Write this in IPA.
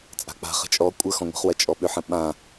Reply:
t͡sʼ a̤ k͡p a̤ χ ə̤ t͡ʃʼ ɔ kʷʼ ə x ɔ̃ ŋʷ ə̤ χ w ɐ t͡ʃʼ ɔ ɓ ʏ ħ ə̃ ɓ ã

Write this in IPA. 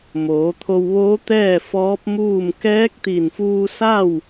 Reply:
m oː˩˧ t̪ʰ o˧ w ʋ oː˧˥ t̪ ɛː˥˨ f ɔː˧˥ p̚ m uː˥˨ m k ɛː˧˥ k̚ t̪ i˧˩ n f uː˧ s a˥˨ w

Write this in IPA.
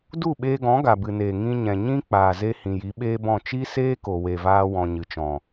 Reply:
d u˦˨ ɓ eː˧ ɡ ɔ̃˨˦ ɡ a˨ b ɨ˨ n eː˨ ŋ ĩ˧ ɲ ɛ̃˨ ɲ ĩ˦ k͡p aː˨ z e˧ h ĩ˨ j i˨˦ ɓ eː˦ b ɔ̃˦˨ t͡ʃ i˦ s eː˦ k o˨ w e˨ v aː˧ w ɔ̃˨ ɲ ɨ˨ t͡ʃ ɔ̃˨

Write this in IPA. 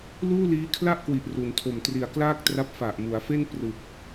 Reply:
l uː˥˩ l iː˦˥ kʰ l a˥˩ ʔ k w i˨˩ ʔ r u˩˦ n tʰ o˨˩ m t r i˨˩ a̯ k l aː˥˩ k̚ t r a˦˥ p̚ f a˨˩ ʔ m u˩˦ a̯ f e˥˩ n p r ɯ˨˩ k̚

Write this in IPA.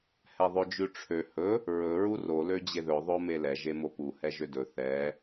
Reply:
h ɛ ðˤ ø d͡ʒ ʉ ʈ͡ʂʰ ø h ɵ | ɹ ɵ ɹ u r o l ø d͡ʑ e ð ɵ ðˤ o m e l ɛ ʒ e m o p u h ɛ ʒ ø d ɵ θ ɛ

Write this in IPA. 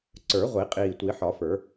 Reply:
ǀ ə˞˨˩˦ ʁʷ i˨˩˦ qʼ iː˨˩ tʷ i˨˩˦ ħ ɒ˨˩˦ f ə˞˨˩˦

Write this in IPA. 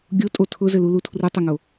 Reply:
ɡʲ o tʼ o tʰ ʊ z ɘ l u l u tʰ r u tˤ ʊ ŋ o

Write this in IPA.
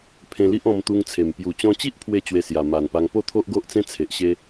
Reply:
pʰ ẽ˧ l i˦ ʔ ɔ̃˧ m t̪ u˧ ŋ t͡sʰ e˨˩ m p j u˨˩ t͡ɕ ɔ̃˧ t͡ɕ i˦ ʔ pʰ w e˥˧ t͡ɕ w e˧ s j a˨˩ m a˨˩ n p a˧ ŋ p o˥˧ t̪ʰ o˦ ʔ ɡ o˦ ʔ t͡s ẽ˦ t͡sʰ e˨ ʔ ɕ e˦

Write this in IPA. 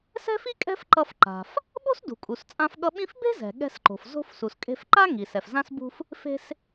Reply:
s ɛ̤˥ f i˥ kʼ ɛ̤˥ f ǃ ʌ˧ f ǃ a̤˩ f | ɓ o̤˥ s d ṳ˩ kʼ u˩ s t͡sʼ ã˧ f ɠ ʌ˧ ɓ ĩ˥ f b e̤˥ z ɛ̤˩ ɠ ɛ̤˧ s ǃ o̤˩ f z o̤˧ f s u˩ s kʼ e̤˧ f ǃ a˥ ŋ i˩ s ɛ˩ f z ã˧ s b ṳ˧ f | f e̤˧ s

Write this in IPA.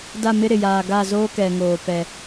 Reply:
d a˦˨ m ɪ˦ ɾ ɪ˨ j aː˨ ɡ a˦˨ z oː˦ k ɛ˨ ŋ oː˨ p ɛ˨

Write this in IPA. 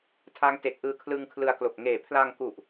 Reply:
tʰ a˦˥ ŋ t e˨˩ k̚ ʔ ɯː˧ kʰ l ɯ˧ ŋ kʰ l ɯ˧ a̯ k l o˨˩ k̚ ŋ eː˨˩ pʰ l a˧ ŋ k u˨˩ ʔ

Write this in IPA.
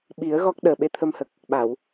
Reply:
ɓ i˨˩˦ ə̯ ɣ ɔ˦˥ k̚ ɗ əː˨˩ ɓ e˧ t̪ʰ ə˧ m h ə˨˩ k̚ | ɓ a˨˩˨ w

